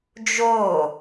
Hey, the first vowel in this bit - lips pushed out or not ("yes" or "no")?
yes